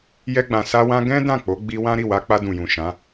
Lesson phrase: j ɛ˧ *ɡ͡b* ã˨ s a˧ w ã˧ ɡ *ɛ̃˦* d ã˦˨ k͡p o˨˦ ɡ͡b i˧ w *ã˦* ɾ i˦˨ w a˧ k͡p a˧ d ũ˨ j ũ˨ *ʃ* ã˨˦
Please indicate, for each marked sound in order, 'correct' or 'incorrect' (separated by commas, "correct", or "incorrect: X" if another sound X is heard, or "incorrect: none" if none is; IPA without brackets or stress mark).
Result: correct, correct, correct, correct